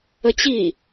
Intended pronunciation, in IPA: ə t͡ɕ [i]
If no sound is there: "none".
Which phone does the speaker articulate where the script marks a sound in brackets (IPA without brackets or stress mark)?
i